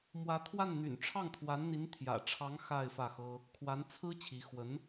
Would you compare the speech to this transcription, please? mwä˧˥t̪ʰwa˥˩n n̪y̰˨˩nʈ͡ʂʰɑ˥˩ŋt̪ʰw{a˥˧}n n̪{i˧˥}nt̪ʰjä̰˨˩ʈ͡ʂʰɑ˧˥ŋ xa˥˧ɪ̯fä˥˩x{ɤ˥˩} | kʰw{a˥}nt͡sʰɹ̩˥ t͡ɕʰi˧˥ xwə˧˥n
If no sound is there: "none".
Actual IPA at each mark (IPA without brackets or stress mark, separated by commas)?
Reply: a˧˥, i˧˥, ɤ˥, a˧˥